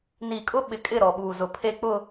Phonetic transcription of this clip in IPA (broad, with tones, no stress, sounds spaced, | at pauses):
n i˨ kʼ ʊ˦ ɓ ɪ˨ kʼ ɪ˦˨ ɾ ɔ˨ ɓ uː˨ z ʊ˨ pʰ e˨ k͡p ʊ˨